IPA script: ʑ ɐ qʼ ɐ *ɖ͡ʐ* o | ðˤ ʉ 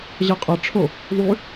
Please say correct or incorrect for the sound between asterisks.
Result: incorrect